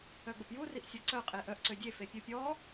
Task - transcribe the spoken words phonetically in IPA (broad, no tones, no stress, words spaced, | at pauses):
œɡ͡bəpju riʔsʲɔǀœ qʼeʔœʔ ǀødʲe fepʲupʲɔ